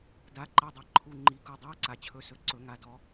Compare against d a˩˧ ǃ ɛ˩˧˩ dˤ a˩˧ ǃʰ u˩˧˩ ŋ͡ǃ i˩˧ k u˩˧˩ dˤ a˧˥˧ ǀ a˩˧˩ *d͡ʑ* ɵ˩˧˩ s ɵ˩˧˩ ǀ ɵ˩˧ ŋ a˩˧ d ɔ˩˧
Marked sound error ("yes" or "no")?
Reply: yes